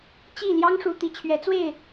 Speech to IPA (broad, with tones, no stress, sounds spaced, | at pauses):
t͡ɕ i˥˩ l j ɑ˥ ŋ ʂ u˧˥ t̪ i˨˩ t͡ɕʰ ɥ ɛ˧˥ t͡s w e˥˩ ɪ̯